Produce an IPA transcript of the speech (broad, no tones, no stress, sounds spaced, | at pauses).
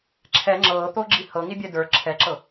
ǁʰ ɛ ŋ͡ǁ ɤː t̪ o ɡ͡ǁ i h ɤ ŋ i bʲ ɛ d ə˞ ǁʰ ɛ ǁ ɤ